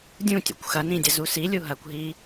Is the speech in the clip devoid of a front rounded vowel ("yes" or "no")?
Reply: yes